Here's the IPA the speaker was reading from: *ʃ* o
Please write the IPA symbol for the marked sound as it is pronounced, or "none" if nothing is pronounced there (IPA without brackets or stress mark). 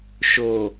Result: ʃ